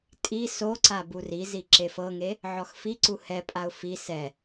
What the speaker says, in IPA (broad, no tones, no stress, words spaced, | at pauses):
tʼi soǀa burizi ǁefɤŋe | ʕɔxfiǀu hɛpʼaʊ̯ fi sɛ